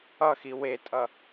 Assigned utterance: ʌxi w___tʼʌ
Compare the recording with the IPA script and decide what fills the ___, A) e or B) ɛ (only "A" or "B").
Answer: A